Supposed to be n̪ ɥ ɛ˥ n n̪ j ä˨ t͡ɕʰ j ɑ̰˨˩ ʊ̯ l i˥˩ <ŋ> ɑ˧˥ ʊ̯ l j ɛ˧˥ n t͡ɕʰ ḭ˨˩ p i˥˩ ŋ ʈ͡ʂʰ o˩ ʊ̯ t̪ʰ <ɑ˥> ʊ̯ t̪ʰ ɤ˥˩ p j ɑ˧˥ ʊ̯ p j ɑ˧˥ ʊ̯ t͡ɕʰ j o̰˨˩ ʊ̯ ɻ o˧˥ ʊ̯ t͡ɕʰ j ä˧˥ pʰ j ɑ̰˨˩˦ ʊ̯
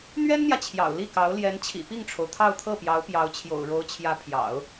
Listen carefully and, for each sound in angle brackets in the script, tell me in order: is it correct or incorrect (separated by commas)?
incorrect, incorrect